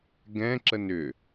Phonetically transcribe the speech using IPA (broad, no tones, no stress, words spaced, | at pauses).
ɡɛ̃ ǁənʏ